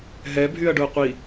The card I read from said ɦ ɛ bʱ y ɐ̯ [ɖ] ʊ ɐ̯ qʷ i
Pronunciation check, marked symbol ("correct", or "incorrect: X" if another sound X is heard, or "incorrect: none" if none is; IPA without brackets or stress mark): correct